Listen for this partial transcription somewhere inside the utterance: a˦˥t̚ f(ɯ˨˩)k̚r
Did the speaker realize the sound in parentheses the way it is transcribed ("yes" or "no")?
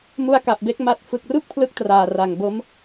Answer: yes